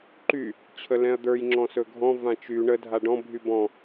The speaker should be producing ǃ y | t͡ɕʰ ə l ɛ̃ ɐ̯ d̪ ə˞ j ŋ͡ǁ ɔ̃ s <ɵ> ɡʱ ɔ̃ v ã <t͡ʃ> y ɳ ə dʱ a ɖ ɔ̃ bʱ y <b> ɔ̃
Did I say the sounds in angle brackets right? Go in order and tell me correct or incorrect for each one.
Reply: correct, correct, correct

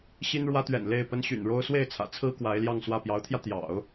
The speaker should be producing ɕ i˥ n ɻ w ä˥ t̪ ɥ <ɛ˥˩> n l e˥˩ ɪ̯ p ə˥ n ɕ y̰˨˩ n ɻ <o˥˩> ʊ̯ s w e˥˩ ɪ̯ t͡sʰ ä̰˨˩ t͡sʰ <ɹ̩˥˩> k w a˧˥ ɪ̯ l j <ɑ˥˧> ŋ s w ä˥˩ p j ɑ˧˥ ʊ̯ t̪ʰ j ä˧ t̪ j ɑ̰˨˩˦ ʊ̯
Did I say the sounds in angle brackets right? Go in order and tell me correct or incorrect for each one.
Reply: incorrect, incorrect, incorrect, correct

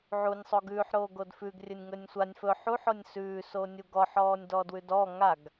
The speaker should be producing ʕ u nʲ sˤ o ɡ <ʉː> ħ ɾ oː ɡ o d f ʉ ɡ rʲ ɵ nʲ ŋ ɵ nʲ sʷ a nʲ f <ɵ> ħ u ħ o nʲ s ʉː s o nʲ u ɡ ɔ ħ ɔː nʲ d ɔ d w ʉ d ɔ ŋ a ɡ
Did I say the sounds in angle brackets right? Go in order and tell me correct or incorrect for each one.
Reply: correct, correct

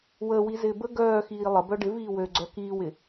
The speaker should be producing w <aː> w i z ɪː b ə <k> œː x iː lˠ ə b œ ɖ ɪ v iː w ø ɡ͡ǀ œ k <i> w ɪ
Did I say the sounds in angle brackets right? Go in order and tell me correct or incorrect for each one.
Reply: incorrect, incorrect, incorrect

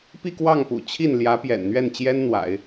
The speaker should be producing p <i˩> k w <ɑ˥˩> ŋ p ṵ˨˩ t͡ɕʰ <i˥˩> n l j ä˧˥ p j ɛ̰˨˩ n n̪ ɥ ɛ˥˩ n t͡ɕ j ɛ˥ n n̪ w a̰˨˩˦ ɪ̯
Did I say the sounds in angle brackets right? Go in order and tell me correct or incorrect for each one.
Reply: incorrect, correct, correct

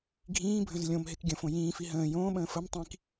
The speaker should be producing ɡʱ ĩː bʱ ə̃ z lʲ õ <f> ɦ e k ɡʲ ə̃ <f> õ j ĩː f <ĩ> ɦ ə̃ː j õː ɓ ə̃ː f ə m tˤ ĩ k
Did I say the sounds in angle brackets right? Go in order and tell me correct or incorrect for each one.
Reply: incorrect, correct, incorrect

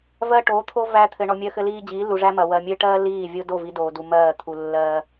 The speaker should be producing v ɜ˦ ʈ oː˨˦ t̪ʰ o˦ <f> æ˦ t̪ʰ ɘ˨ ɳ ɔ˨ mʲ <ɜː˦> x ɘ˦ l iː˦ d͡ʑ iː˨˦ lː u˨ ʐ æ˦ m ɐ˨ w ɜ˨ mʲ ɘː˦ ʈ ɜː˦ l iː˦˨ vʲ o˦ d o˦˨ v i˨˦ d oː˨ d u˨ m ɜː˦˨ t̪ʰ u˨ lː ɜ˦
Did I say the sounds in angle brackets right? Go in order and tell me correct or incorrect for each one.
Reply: incorrect, incorrect

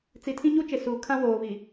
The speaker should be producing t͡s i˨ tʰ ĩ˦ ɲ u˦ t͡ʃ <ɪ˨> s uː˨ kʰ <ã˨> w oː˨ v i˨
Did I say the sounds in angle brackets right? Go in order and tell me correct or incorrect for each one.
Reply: correct, incorrect

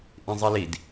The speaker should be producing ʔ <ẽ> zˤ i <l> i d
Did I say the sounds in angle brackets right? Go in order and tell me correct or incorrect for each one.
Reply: incorrect, correct

